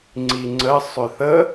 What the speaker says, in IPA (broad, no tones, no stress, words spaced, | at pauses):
ŋ͡ǀiŋ͡ǀə sˤʏθə